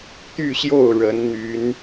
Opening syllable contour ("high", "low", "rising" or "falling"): falling